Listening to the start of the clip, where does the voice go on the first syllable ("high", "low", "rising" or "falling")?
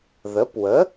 rising